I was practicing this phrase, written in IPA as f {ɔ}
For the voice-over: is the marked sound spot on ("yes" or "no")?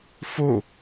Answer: no